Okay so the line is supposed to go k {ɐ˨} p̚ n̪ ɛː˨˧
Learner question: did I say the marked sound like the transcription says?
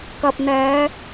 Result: yes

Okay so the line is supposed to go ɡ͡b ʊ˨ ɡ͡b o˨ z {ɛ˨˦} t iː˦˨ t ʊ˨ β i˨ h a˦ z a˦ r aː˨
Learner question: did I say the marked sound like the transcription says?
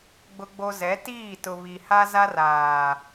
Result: yes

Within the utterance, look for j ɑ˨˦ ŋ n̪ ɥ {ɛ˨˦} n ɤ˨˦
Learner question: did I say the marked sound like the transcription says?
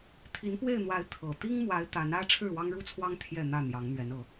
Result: yes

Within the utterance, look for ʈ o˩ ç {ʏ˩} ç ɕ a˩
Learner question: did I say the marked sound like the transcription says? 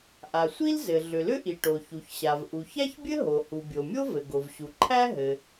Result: no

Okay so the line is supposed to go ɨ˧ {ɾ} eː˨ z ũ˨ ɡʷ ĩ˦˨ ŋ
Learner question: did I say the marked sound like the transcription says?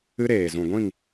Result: yes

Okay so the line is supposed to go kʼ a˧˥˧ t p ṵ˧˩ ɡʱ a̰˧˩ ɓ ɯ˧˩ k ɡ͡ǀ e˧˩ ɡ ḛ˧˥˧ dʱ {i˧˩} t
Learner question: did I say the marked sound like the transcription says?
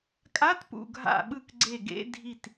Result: yes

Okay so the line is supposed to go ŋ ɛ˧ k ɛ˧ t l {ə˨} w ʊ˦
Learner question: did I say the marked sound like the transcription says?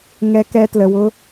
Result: yes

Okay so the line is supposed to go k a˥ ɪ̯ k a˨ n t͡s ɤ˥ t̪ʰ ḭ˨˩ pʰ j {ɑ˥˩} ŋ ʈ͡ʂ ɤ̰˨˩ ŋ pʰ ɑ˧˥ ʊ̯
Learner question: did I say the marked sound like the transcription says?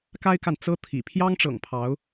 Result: no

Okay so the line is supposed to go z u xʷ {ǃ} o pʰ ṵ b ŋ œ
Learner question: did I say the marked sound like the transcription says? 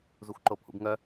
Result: yes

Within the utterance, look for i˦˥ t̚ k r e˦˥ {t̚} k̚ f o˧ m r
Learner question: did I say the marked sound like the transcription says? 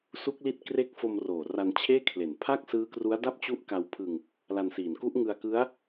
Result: no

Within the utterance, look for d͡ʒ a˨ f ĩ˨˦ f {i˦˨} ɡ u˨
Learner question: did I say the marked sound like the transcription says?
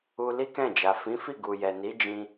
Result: yes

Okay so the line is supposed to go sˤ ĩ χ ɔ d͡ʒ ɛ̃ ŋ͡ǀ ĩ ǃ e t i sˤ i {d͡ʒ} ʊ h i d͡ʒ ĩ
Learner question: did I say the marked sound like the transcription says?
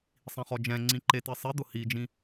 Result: no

